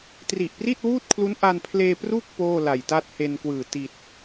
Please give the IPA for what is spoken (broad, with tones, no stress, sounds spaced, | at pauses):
t r i˨˩ ʔ p r i˥˩ t̚ w uː˥˩ t̚ kʰ l u˦˥ n ʔ a˧ n pʰ l eː˧ p r u˥˩ k̚ p oː˥˩ l a˨˩ j t a˥˩ t̚ h e˧ n k w ɯː˨˩ t i˨˩ t̚